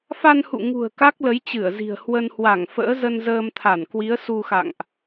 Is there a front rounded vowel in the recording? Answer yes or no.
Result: no